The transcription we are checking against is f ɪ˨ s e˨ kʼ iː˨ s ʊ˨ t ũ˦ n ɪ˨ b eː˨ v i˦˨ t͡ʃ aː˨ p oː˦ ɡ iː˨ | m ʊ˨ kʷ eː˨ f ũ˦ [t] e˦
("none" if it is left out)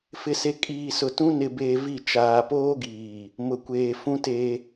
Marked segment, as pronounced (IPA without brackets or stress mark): t